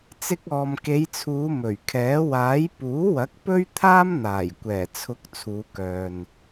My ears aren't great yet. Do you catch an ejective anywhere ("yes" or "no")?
no